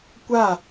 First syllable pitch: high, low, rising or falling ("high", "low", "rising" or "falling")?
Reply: falling